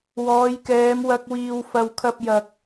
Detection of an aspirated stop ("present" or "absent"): present